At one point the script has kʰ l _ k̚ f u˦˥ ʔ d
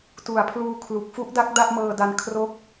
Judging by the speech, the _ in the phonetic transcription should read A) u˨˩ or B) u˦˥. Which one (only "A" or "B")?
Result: A